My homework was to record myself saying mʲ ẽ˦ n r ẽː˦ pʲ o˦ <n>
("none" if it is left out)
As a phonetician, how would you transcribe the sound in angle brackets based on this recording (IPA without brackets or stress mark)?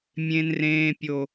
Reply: none